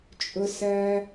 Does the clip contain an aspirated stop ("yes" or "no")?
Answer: no